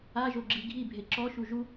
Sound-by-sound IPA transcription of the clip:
aʒoɡ͡ǁi ɡʱibʱe ǁɔʃu ʒu

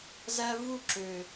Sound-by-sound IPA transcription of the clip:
zæ˧vu˦˨ǁø˨

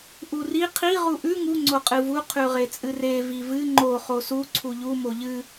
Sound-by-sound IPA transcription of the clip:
ʔuri qʰi ʁuʔʉ ŋu ŋ͡ǀoqʼɨvu qʰʉʁet͡sʼɨre vivɨ ŋ͡ǃo χosu ǀʰuʎu moʎɨ

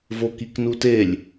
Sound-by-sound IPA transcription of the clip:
vokiknutelʲ

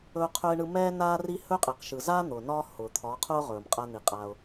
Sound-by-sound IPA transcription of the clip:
ɵː˦qʰɵː˦ɪ̯ɳɯ˦ mɛː˦ naː˦ri˦ hɵː˦qʼe˨q ʃɯ˨zaː˦ n̪ʊː˨nɒː˦ hʊː˨t̪ʰɒ˨˦qʰʊː˦ʁɵː˨m qʼa˦n̪i˨qʼa˦ʊ̯

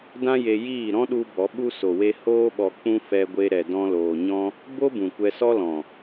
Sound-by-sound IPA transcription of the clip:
dã˦je˧ jiː˦˨ɾɔ̃˦ɗu˧ bɔ˨˦ɓu˦ so˨we˧ hoː˦ɓɔ˧ k͡pũ˧ fɛ˧ɡʷe˧ ɾɛ˨dɔ̃˧loː˨ ɲɔ̃˧ | bo˦bũ˨ kʷɛ˧sɔ˦lɔ̃˨

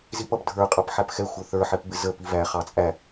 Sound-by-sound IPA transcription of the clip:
zipʌb dʱə˞qʼɑp ħæpxɛxʷə˞ θə˞ħɛpbɪ zə pivæ χɑt͡sʼæ

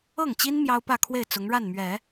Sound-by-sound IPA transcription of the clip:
ɤ˥˩ŋt͡ɕi˥n mjɑ˥ʊ̯pä˥˧kʰwe˥˩ɪ̯ t͡sʊ˧˥ŋɻa˥˩nmɥɛ˨˩˦

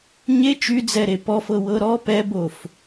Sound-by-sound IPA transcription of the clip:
ɲe t͡ʃyd͡zɛɾe pɔfɤwɤ ɾɔ pɛbof

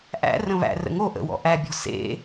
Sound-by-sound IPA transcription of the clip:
ʔæ̰ rə̃βæ̰ rə̰ŋo ʔə̰wɔ̰ ʔæbʲɔ̤ sḛ

